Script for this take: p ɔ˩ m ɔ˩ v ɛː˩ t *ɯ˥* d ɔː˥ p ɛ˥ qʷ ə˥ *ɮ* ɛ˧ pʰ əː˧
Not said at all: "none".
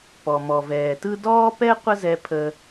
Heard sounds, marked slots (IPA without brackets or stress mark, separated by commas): ɯ˥, z